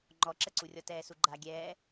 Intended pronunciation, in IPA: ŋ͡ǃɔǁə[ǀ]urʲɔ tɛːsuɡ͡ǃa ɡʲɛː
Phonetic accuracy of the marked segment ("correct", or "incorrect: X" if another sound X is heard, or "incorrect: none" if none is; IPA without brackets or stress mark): correct